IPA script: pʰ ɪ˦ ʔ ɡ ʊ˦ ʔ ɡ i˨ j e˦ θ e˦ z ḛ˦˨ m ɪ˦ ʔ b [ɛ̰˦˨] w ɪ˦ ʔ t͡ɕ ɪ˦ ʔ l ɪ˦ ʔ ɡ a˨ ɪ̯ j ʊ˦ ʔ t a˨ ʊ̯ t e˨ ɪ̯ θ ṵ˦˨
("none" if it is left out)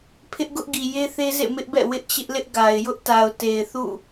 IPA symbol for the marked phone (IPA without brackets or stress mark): ɛ̰˦˨